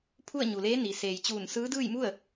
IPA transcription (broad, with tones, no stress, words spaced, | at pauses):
pʰu˥˨ə̯ɲu˩leː˧˥ ni˩ seː˩jt͡ɕuː˧˩n sɯː˧˥dɯː˥˨jmu˥˨ə̯